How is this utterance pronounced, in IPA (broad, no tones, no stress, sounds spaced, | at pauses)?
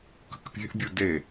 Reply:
k ə̤ k pʲ e̤ ʔ bʲ u d e